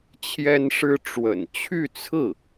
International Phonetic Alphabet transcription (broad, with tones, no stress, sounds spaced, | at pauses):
t͡ɕʰ j ɛ˥ n ʂ ɻ̩˥ ʈ͡ʂ w ə̰˨˩ n t͡ɕʰ y˥˧ t͡sʰ ɹ̩˥˩